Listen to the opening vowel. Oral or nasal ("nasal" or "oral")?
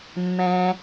nasal